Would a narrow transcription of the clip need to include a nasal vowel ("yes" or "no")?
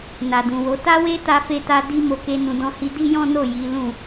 yes